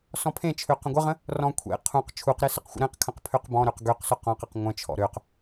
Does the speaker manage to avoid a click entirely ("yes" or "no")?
yes